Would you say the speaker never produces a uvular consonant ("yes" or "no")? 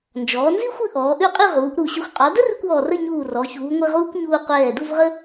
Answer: no